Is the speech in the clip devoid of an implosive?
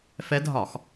yes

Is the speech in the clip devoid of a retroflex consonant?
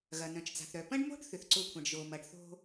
no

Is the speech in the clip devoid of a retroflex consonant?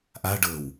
no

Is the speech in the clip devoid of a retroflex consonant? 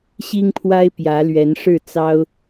no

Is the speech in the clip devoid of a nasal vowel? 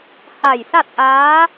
yes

